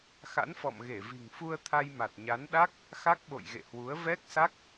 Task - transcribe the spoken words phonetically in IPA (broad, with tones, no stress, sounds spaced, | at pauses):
x a̰˧˥ n f ɔ̰˧˨ m ɣ e˧˩ v i̤˨˩ ŋ f u˧ ə̯ t̪ʰ a˧ j m a˨˩ t̚ ɲ a˨˦ n ɗ a˦˥ k̚ | x a˦˥ k̚ ɓ o̰˧˨ j ɣ ḛ˧˨ h w u˨˦ ə̯ v ɛ˦˥ k̚ s a˦˥ k̚